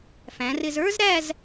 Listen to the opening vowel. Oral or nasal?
nasal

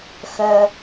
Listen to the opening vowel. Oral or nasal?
oral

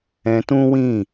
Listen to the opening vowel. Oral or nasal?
nasal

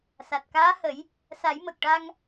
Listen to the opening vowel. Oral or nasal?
oral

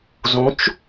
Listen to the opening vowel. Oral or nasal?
nasal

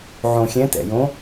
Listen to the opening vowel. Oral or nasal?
nasal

